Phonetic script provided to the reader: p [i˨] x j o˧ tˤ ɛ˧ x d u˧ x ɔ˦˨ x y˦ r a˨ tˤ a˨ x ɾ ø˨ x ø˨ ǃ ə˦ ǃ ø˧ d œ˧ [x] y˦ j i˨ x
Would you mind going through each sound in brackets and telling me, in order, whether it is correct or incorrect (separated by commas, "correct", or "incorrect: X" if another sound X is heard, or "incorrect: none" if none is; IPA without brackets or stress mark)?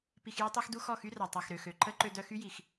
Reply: correct, correct